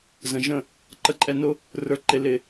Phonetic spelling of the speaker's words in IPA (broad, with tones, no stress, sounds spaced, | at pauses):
z ə̃˨ ʒ ə̃˦˨ | ǃ ə˨ ǃʼ ɛ˨ n ʊ˧ | r ə˞˨ ǃ ɪ˨ l ɪ˨